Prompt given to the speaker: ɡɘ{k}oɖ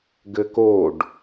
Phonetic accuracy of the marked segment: correct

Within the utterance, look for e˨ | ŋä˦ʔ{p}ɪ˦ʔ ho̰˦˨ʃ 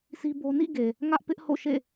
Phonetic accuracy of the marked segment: correct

